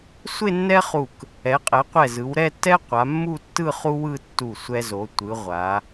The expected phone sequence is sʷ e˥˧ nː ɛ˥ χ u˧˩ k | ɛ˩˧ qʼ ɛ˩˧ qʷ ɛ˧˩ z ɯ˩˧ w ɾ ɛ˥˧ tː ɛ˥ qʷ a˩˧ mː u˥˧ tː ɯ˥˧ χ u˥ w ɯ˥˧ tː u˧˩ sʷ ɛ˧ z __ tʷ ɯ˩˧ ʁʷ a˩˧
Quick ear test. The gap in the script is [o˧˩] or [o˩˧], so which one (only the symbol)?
o˩˧